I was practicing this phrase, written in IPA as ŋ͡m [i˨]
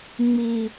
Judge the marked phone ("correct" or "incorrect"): correct